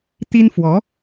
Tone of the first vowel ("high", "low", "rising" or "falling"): high